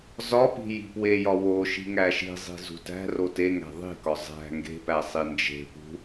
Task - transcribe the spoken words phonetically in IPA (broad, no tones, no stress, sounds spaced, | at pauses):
z ɒ p i̤ j i̤ p w e j ɒ w o ʃ i̤ ŋ æ ʃ i̤ zˤ i̤ z ṳ t æ̤ r o t e ŋ æ̤ ðˤ i̤ k ɒ zˤ æ̤ ŋ ɡ e̤ p æ sˤ i n d͡ʒ e̤ p ṳ